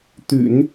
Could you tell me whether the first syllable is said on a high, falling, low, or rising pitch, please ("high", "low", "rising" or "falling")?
low